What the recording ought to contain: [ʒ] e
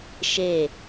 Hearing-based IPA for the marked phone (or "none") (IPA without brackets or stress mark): ʃ